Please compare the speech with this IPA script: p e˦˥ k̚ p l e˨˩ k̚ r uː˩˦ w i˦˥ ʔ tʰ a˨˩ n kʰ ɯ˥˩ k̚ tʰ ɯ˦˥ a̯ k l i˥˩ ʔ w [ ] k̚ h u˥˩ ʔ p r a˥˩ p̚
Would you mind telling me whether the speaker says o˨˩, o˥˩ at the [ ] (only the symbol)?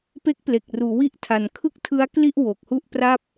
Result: o˨˩